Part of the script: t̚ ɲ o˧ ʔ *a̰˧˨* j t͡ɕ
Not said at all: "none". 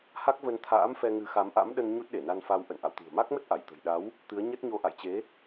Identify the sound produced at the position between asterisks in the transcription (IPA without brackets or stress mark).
a̰˧˨